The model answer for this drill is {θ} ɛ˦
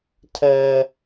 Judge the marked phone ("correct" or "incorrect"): incorrect